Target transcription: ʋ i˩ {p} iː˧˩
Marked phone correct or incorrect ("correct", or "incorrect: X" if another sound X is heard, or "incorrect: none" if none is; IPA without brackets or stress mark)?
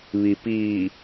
correct